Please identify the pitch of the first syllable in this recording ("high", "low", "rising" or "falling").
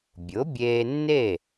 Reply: rising